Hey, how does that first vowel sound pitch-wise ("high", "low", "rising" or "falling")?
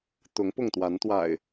rising